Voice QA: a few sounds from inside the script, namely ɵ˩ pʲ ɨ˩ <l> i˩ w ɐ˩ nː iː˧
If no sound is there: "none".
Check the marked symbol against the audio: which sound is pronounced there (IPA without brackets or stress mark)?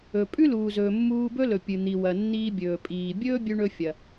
n̪